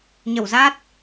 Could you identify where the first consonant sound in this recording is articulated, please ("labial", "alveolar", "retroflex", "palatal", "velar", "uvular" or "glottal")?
palatal